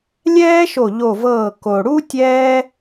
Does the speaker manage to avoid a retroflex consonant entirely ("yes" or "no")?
no